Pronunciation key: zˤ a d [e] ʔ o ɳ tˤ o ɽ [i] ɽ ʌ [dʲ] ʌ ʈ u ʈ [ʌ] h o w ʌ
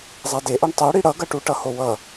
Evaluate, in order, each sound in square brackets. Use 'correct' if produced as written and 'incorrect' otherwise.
correct, correct, incorrect: ɡ, correct

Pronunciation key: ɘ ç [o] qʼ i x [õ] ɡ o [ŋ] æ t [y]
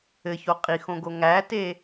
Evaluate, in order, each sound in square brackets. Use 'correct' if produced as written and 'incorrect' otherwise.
correct, correct, correct, incorrect: e

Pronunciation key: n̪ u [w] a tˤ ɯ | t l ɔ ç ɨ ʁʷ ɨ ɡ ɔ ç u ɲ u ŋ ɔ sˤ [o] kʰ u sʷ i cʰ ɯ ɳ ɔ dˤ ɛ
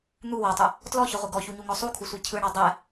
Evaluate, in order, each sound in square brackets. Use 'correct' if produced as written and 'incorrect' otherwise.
correct, incorrect: u

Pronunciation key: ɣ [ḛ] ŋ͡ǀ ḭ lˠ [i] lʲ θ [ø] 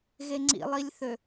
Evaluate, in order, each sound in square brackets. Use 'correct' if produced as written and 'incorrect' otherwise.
incorrect: e, correct, correct

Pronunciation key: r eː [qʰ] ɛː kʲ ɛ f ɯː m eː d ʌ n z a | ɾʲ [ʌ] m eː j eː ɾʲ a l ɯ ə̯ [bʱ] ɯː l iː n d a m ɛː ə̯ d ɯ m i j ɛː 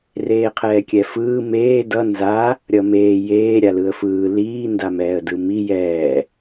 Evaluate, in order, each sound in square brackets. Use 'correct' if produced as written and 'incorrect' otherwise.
correct, correct, incorrect: f

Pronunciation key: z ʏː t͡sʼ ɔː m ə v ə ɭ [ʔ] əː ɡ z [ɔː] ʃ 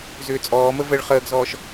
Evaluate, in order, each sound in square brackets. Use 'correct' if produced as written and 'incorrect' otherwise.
incorrect: χ, correct

